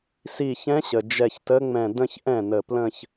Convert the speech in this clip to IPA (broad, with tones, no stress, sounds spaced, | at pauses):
s i˧˩ ç ɛ̃˧˥ ɕ ə˩ d͡ʒ ɛ˧˩ ç t ə˧˥ ŋ͡m ɛ̃˧˩ d ə̃˥˧ ç ʔ ɛ̃˥˩ n ə˧˩ p l ə̃˥˧ ç